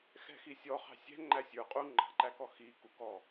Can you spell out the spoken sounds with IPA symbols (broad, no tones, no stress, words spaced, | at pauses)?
xɛ̤xisʲɔχɑ̤ sʲɛ̤ ŋ͡ǃæsʲə˞ qʼu ŋ͡ǃɑ̤ǃækɔ xi kukɔ